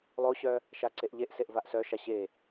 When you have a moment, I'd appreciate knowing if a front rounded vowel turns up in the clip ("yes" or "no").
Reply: yes